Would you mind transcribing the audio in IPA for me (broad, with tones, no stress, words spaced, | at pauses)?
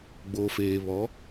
ɡ͡bo˨feː˨βɔ˨˦